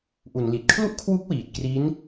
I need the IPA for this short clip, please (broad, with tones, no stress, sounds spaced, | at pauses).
ʔ u˩˦ n l i˨˩ t̚ kʰ l u˥˩ ʔ kʰ w u˦˥ k̚ w iː˨˩ t̚ k r i˦˥ n